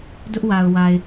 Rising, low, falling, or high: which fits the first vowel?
high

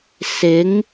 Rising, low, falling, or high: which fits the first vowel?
rising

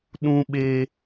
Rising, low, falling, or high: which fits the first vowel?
high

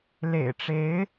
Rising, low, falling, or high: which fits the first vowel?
low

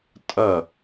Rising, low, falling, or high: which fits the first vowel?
falling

